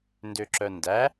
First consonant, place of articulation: alveolar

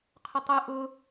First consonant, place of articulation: uvular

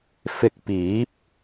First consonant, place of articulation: labial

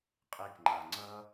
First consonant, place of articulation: uvular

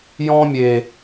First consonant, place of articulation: palatal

